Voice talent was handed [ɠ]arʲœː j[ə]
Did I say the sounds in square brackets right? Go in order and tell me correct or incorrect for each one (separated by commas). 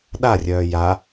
incorrect, incorrect